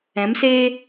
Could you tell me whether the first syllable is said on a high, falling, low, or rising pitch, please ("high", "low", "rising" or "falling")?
rising